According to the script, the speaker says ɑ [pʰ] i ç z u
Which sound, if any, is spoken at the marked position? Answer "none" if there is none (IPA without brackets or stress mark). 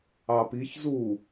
p